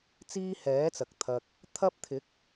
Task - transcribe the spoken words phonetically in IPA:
t͡s iː˥ h ɛː˨˥ t͡s ɐ˨ k̚ t̪ʰ ɐ˧ k̚ | t̪ʰ ɐ˥ p̚ t̪ʰ ɪ˨˥ k̚

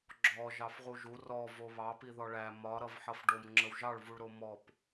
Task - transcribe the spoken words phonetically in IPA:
ɡ͡ǁ ɔ ʒ ɑ f ʁ u ʒ u r ɔ v o β ɑ p i ð ɔ ɭ æ m ɒ ɾ ʌ v ħ ʌ f ɖ o m ŋ͡ǁ ə w ʒ ɑ ɭ v u ɭ ɾ o m ɔ p

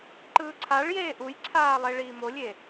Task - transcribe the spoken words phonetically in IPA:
ǃ ɯː ǀʰ a ɭ j eː ʔ u j ǀʰ aː lˠ e ɭ iː m o lʲ e

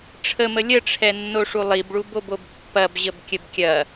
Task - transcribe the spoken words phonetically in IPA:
ʈ͡ʂʰ ə m ə lʲ ə ʈ͡ʂʰ ɛ nː o ʂ u lˠ i b ɭ u b o b o b pː ɐ b ʑ ə b kʲ ə b kʲ ɐ

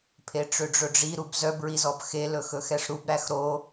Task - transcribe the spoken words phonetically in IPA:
pʰ e ʈ͡ʂ ø ɖ͡ʐ ɵ ɖ͡ʐ i ɾ u b z œ b ɹ i z ɔ b x e l ɵ x ɵ x ɛ ʂ ɾ u b ɾ æ x ɾ o

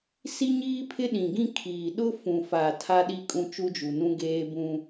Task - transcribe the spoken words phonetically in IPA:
s i˦ ɲ iː˦ pʰ ɪ˦ ɗ ĩ˨ ɡ ĩ˦ kʰ iː˨ ɗ ʊ˦ f ũ˨ f a˨ tʰ a˦ ɗ i˦ kʼ ũ˦ t͡ʃ u˦ d͡ʒ u˨ n ũ˦ ɡ eː˦ b ũ˦

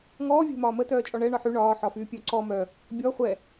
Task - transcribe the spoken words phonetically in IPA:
ŋ ɔː vʲ ɛ̤ m ɒː m ə t œː t͡ʃʼ ɔ ɳ ɛ ɳ ɒ ħ y ɳ ɒː ħ ɒ f yː pʲ œ ǀ ɔ m œ | bʲ ɔ χʷ ɛ

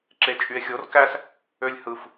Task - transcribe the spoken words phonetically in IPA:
ǁ e t͡ʃʼ y e̯ xʲ o r k æ s | ø lʲ h ɯ f

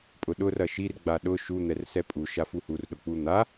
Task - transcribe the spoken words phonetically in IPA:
pʼ ʊ ɗ ʊ r ɐ ʃ i r ɡ͡b a ɗ ʊ ʃ u n̪ ɛ r s ɛ pʼ u ʃ a f u h u r ɗ ʊ k͡p u n̪ a

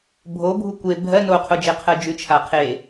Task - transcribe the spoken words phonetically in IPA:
bʱ o bʱ u kʷ e bʱ ɜ n o qʰ o d͡ʒ e qʰ ɜ d͡ʒ ʉ t͡ʃʰ a qʰ e

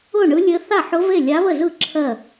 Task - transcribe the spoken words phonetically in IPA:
ʊ˥˩ ɳ ɯ˧˥ lʲ ɘ˧˥ θ a˥˩ ħ ʊ˧˥ v e˥˩ lʲ a˧˥ β ə˥˩ z ɯ˥˩ ǁʰ ɜ˥˩

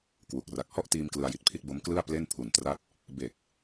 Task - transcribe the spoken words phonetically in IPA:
k w u˨˩ k̚ r a˨˩ k̚ h ɔ˥˩ ʔ t iː˧ m k l ɯ˧ a̯ j i˨˩ t̚ pʰ i˥˩ t̚ b o˦˥ m k l ɯ˥˩ a̯ p l e˥˩ n pʰ u˨˩ n t r a˥˩ t̚ | b e˨˩ k̚

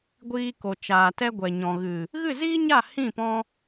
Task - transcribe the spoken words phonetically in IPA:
ɡʷ iː˧ k o˨ t͡ʃ aː˨ t ɛ˧ ɡʷ ɛ˨ ɲ ɔ̃˨ ɣ ɨ˨ | ɣ ɨ˦˨ z iː˦ ɲ a˦˨ h ĩ˦˨ p ɔ̃˧

